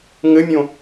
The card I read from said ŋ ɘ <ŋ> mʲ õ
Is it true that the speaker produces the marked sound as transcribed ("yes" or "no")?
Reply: no